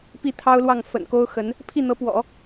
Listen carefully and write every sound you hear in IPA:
p i˥˩ t̪ʰ ɑ˥ ʊ̯ l w ɑ˥˩ ŋ f ə̰˨˩ n k o˥ ʊ̯ x ə˧˥ n | pʰ i˥˩ n̪ ɤ˧˥ p w ɔ̰˨˩˦

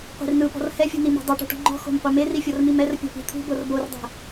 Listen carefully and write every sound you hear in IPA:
qʷ i̤ r n ɯ p ɔ̤ r h ɛ fʲ ṳ n i m ṳ dˤ ɛ ʈ ṳ ʈ ɔ̤ ŋ͡ǃ ɔ̤ x o̤ m qʷ e m e r i fʲ ɔ r m i m ɛ r pʲ ɔ̤ p i̤ t̪ʰ ṳ b ɤ r b o r dˤ ɛ̤

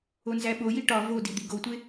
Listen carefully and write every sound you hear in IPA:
o n z æ ɓ o j i ʈ ɒ v o d i d̪ i ɡ o tʷ e

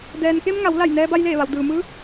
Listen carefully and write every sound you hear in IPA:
d ɛː˩ n k e˧ m ŋ a˩˧ w l a˧˩ j n ɛː˧ b a˧ j l eː˧˩ ʋ a˩ w d ɯː˩ m ɯː˧˥

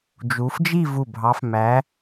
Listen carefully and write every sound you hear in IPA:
d͡ʒ u˨˦ f d͡ʒ i˥˧ v u˧˩ bʱ ɑ˨˦ f m æ˨˦

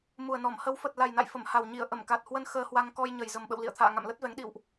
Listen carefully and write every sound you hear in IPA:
m u˨˩ ə̯ n ɔ˧˩ m h ə˨˦ w f ə˨˩ t̚ l a˨˩ j n a̰˧˨ j f ə˧˩ m h a˨˩ w ɲ i˧˩ ə̯ ʔ ə˧˩ m k a˨˩ t̚ h w ə˧ n x əː˧ h w a˧ ŋ k ɔ˧ j ɲ ə˨˩ j z ə˨˩ m ɓ ə̰˧˨ w l ḭ˧˨ ə̯ t̪ʰ a̰ː˧˨ ŋ a̰˧˨ m l ə˦˥ t̚ v ɛ˨˦ ŋ ɗ ḭ˧˨ w ʔ

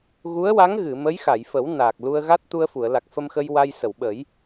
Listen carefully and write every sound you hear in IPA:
ɣ u˧˥ ə̯ w a˧˥ ŋ ɣ ɨ˨˩˨ m ə˧˥ j x a˨˩˨ j f ə˨˩˦ w n aː˨˩ k̚ l u˧ ə̯ ɣ a˦˥ t̚ t̪ u˧ ə̯ f u˨˩˨ ə̯ l a˨˩ k̚ f ə˧ m x ə˧ j w a˧ j s ə˨˩˨ w ɓ ə˨˩˦ j

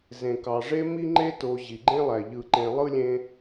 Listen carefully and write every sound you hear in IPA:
z ẽ˩ k ɑ˩ ʐ e˦ m i˦ ŋ͡ǃ e˦ t o˨ ʑ i˩ ɡ͡ǃ ẽ˥ lˠ æ˩ ʎ ɯ˨ ǃ ẽ˨ lˠ ɯ˥ lʲ ẽ˦

